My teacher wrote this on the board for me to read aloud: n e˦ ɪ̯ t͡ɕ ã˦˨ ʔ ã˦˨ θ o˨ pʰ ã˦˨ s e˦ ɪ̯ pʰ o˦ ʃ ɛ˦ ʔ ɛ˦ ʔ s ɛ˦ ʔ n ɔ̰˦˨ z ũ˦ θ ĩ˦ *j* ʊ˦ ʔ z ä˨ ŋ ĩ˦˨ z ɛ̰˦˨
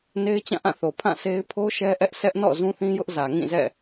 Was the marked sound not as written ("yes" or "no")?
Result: no